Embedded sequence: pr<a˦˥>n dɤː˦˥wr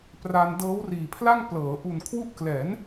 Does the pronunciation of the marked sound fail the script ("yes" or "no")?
yes